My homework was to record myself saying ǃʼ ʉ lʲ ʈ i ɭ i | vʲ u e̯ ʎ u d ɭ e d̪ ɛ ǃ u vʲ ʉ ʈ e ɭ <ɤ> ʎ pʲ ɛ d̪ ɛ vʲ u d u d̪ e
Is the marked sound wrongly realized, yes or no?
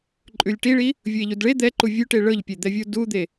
no